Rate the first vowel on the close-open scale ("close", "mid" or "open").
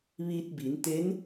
close